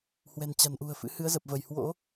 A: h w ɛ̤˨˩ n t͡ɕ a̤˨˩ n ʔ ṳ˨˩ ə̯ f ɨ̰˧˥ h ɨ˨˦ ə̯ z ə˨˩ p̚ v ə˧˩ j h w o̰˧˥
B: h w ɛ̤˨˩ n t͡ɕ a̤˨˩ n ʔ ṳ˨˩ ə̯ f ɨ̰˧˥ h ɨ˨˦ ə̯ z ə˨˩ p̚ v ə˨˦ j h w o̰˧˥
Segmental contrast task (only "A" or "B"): A